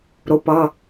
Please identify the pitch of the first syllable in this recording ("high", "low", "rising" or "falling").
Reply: rising